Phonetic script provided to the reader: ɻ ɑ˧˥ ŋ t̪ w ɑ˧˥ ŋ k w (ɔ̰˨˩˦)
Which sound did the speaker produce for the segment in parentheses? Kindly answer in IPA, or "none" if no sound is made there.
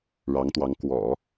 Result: ɔ̰˨˩˦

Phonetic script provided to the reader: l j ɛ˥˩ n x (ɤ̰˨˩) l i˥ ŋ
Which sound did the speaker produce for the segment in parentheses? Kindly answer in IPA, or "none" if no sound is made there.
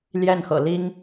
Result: ɤ̰˨˩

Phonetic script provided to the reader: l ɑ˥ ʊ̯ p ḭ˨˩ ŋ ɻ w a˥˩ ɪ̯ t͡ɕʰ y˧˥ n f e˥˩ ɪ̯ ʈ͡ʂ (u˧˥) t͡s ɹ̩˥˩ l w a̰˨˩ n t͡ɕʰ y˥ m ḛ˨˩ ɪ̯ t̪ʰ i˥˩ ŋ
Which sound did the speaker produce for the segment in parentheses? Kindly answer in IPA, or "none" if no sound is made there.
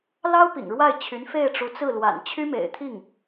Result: u˧˥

